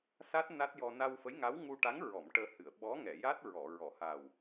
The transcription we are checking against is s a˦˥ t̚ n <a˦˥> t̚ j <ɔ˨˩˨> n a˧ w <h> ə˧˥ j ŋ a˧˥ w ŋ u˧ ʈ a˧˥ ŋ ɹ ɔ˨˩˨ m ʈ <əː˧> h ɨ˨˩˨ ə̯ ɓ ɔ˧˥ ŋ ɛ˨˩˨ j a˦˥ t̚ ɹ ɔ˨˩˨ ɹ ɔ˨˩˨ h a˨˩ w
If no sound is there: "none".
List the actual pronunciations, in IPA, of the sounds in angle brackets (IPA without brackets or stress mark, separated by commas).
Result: a˦˥, ɔ˧, f, əː˧